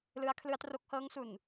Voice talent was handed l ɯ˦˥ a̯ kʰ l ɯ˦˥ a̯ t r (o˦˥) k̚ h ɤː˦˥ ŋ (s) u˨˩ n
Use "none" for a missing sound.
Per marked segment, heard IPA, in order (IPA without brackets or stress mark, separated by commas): o˦˥, s